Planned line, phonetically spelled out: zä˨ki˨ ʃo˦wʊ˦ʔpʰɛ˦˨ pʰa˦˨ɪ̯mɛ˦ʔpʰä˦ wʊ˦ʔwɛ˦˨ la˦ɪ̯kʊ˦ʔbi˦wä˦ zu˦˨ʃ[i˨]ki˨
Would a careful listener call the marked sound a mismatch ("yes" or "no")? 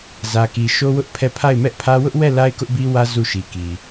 no